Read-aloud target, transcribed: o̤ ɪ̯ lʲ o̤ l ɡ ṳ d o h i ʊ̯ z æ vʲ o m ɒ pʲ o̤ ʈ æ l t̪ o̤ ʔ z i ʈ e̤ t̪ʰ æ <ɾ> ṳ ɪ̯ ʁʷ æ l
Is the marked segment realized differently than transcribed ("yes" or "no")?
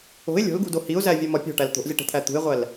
yes